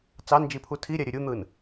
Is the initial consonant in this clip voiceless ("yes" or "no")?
yes